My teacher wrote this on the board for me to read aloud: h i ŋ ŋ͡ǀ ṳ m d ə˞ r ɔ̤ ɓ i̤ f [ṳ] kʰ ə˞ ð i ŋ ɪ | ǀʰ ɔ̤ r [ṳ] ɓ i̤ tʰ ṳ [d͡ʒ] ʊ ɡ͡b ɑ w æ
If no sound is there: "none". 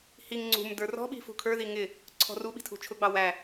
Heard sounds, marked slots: ṳ, u, t͡ʃʰ

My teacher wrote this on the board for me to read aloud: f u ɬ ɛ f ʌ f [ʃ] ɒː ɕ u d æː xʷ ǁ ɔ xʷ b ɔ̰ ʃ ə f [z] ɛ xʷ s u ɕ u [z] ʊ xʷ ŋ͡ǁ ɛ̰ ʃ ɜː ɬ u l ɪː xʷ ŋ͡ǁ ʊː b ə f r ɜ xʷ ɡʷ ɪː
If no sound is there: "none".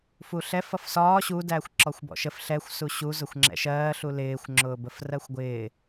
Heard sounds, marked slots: s, ɬ, z

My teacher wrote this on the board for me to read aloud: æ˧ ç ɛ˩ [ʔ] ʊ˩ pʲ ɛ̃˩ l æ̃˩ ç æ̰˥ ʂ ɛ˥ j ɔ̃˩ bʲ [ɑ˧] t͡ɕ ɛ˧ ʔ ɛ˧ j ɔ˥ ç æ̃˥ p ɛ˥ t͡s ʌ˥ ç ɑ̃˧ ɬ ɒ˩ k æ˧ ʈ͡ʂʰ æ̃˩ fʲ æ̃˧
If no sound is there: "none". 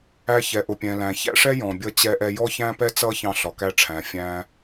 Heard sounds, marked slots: ʔ, ʌ˧

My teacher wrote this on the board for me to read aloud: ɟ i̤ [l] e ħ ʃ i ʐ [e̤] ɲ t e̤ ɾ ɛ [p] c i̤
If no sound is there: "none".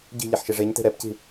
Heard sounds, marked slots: ʎ, e, p

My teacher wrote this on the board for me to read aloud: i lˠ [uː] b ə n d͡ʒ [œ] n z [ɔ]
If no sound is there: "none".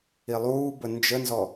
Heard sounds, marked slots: uː, ə, ɔ

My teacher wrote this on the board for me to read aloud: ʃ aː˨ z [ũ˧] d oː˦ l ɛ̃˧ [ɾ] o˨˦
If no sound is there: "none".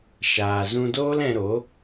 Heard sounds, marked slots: ũ˧, ɾ

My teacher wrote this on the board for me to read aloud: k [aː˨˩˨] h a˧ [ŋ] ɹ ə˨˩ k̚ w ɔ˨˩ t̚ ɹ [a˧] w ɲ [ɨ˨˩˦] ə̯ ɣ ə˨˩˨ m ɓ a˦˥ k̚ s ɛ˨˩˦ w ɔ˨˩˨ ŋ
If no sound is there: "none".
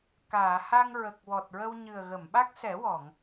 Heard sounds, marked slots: aː˨˩˨, ŋ, ə˧, ɨ˨˩

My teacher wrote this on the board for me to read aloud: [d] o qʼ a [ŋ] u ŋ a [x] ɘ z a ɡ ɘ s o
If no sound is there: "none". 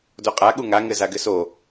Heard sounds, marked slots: d, ɠ, ŋ

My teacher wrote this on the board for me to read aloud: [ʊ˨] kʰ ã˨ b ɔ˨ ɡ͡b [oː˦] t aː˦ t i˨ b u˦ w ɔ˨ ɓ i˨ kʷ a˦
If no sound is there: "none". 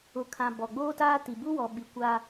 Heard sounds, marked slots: ʊ˨, oː˦

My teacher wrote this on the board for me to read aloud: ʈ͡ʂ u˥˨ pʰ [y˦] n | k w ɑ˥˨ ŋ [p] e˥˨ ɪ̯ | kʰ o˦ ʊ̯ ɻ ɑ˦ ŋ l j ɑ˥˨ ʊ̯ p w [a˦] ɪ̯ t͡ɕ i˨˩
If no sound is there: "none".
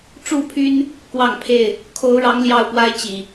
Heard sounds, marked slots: y˦, pʰ, a˦

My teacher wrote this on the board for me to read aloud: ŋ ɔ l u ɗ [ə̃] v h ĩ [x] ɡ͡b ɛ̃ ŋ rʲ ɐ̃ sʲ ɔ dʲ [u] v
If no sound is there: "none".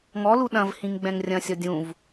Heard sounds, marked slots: ɐ̃, ŋ, ũ

